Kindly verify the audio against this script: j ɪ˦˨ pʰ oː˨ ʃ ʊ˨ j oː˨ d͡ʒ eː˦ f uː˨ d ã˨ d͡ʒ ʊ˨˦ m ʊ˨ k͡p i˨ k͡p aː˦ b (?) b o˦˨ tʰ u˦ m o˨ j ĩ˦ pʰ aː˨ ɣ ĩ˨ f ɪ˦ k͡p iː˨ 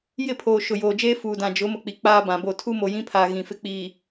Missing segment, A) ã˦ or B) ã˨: B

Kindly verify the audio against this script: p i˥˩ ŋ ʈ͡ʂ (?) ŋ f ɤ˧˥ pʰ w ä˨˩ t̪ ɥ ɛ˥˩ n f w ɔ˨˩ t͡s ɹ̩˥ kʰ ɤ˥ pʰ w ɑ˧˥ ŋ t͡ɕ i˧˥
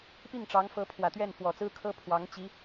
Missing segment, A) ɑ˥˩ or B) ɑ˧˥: B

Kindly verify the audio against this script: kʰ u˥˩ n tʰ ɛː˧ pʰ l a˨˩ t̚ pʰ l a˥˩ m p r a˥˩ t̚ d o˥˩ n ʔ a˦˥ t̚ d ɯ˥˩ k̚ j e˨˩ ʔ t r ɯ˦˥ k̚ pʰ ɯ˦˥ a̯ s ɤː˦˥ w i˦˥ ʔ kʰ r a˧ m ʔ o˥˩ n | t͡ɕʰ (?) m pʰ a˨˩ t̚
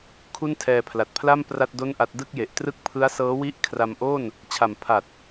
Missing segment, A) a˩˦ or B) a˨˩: B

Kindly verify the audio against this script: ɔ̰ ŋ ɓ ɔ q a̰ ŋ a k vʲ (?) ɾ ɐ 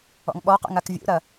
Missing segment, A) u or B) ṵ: B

